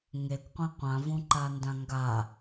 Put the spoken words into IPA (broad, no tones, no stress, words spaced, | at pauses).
ŋekʷqʷĩ qʷãvũǃandã ŋɡa